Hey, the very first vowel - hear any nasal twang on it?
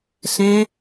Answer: yes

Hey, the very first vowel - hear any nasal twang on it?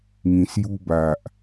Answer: yes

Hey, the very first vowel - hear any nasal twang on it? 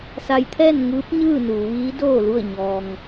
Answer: no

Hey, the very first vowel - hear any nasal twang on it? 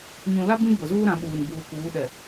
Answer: yes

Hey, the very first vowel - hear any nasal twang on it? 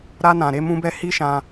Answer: no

